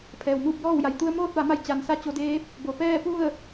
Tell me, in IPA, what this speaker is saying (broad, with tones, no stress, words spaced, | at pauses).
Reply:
pʰɛː˩wmuː˥˨p̚jɔː˥˨wja˩j t̪u˧ə̯moː˥˨t̚ʋa˩˧ma˧j t͡ɕa˩nsa˧˥ t͡ɕo˧deː˧˥p̚ | bo˩pɛː˥˨pu˥˨ə̯